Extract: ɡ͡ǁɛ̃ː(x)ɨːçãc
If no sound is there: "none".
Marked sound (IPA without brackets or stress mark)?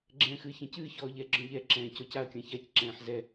x